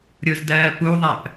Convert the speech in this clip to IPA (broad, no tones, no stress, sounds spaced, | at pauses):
ɾʲ ʊ z d ɜː p u ðˤ æ p